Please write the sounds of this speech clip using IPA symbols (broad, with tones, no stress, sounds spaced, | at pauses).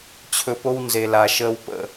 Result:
t͡ɕʰ ɵ˧ p o˦ w n z e˧ l a˧ ʃ əː˦ w p ə̰˦˨